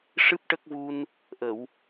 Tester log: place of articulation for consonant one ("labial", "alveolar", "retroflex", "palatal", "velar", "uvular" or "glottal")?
retroflex